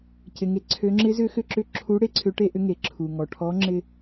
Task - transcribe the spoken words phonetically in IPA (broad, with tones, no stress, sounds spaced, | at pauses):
c ɪ˩ ŋ e˩˧ ǀʰ ø˩˧ ŋ͡ǁ ɪ˧˥ z ʏ˧˥ x ʏ˧ ǁ ʏ˧˥ ǁʰ u˧˥ ɽ e˧˥ ǀʰ ʏ˧˥ ʈ e˥ ʔ ʏ˧˥ ŋ e˩ ǁʰ u˩ ŋ ɔ˩ ʈʰ ɔ˧˥ ŋ͡ǁ ɪ˧